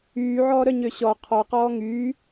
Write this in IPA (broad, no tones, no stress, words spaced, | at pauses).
yːʕɔːɾœɲø ɕɔ qʰɔqɔː ŋy